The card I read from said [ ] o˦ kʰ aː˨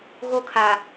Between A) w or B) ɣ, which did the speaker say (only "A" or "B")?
B